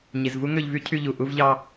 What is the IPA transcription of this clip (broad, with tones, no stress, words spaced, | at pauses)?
ɲi˨zvu˦ŋø˧ʎvy˦ cʰy˧ʎu˨ ʔu˧vʎɑ˧